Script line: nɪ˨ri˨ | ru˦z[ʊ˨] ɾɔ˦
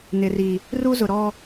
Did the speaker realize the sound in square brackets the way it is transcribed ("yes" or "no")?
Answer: yes